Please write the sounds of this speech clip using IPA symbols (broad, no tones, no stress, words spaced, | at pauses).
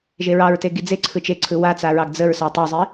ʒeɹɑɹteɡi d͡ze ǀʰɯt͡ʃeǀʰɯ wat͡saɹɑɡ d͡zəɹ satˤɵzˤi